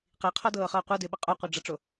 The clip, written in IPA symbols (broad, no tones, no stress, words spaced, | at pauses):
qiqʰɔdɤːχɤː qʷɤdɪːɓə qʼoqʷəːɖ͡ʐɤʈ͡ʂo